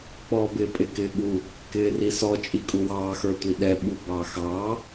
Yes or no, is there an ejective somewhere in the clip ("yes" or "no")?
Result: yes